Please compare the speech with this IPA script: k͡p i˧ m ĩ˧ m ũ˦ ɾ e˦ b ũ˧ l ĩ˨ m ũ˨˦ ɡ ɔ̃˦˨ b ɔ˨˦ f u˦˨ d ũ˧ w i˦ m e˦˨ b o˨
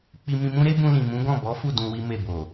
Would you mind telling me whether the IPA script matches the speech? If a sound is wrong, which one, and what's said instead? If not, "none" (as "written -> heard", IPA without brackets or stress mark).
none